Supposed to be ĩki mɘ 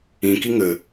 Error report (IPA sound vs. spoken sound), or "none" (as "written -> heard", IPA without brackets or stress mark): m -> ŋ